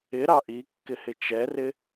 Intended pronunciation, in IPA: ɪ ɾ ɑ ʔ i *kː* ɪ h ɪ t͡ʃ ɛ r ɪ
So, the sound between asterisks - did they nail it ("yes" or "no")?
yes